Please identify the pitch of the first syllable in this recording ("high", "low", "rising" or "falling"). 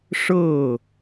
falling